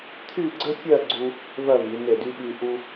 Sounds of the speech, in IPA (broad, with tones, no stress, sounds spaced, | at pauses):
t̪ʰ y˥˧ ɡ͡ǀ ə˥ fʲ ɜ˥˧ ɡ͡ǀ u˧ | v ɜ˥˧ v i˩˧ n e˧˩ d y˧ ɓ y˧ ʔ u˥